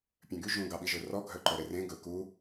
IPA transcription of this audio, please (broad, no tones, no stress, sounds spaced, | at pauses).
pʲ œ̃ ɡ y ʒ ũ ɡ ɑ ɓ i ʒ ɵ r ɔ ɡʱ œ ǃ œ ɾ e r ẽ ɡ ɵ k u